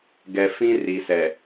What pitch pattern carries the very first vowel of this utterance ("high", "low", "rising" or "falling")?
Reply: low